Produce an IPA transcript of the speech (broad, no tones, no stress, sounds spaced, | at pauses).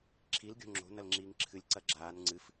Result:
ǁʰ i l ɡʲ o̤ ŋ͡ǁ o̤ n ɐ l ŋ͡ǁ iː ŋ ǁʰ ɨ lʲ ǀ ɐ ɡ͡ǁ aː n ŋ͡ǀ ɨ f